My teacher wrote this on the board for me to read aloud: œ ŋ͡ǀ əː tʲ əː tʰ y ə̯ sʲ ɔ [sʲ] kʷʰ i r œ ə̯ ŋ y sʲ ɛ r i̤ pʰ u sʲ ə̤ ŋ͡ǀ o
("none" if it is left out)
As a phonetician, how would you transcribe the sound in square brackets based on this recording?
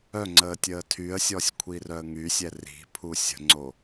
sʲ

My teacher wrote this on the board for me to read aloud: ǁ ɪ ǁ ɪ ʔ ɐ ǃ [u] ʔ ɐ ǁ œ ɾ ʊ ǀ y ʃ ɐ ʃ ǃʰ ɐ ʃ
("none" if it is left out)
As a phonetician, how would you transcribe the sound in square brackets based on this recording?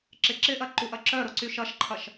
u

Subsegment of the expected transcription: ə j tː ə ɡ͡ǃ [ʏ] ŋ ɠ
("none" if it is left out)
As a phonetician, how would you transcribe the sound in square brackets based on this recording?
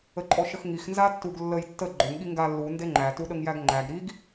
ʏ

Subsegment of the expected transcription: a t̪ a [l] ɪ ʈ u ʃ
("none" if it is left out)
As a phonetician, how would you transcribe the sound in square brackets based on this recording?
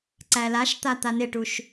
n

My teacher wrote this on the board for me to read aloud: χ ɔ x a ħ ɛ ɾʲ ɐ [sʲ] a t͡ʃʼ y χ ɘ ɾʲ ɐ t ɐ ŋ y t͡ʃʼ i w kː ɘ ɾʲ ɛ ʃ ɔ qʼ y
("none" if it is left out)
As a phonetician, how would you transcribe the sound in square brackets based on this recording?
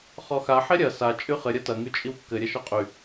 s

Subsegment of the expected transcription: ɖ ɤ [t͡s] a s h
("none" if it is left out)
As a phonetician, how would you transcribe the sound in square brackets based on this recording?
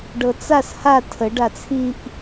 t͡s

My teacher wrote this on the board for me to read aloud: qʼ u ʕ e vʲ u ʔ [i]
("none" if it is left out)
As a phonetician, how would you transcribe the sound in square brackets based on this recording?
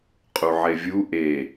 e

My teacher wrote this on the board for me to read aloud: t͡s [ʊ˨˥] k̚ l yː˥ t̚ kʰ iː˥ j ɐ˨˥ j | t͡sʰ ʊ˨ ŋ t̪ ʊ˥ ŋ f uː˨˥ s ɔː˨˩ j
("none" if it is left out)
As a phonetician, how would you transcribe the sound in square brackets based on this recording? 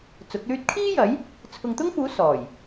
ʊ˨˥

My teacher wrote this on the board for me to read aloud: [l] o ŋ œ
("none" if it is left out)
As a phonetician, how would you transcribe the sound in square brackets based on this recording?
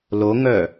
l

